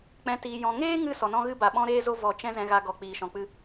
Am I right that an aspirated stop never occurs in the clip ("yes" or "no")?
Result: yes